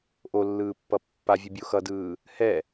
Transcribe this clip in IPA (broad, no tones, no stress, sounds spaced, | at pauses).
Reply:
ʔ o lː ɯː pː ʌ pː a vʲ ɯ bʲ o x ʌ d ɯː | h ɛ